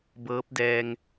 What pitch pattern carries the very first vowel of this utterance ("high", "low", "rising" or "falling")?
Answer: rising